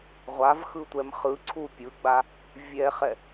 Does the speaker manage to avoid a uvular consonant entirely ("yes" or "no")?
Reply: no